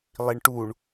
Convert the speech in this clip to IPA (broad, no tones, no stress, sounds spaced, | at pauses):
lˠ i ɳ ʈ u ɳ